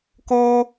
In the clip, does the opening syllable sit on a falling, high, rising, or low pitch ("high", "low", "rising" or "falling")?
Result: high